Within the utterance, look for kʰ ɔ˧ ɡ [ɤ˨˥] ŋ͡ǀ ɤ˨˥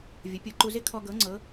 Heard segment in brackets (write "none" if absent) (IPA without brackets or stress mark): ɤ˨˥